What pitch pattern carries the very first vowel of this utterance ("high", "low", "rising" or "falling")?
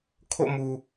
falling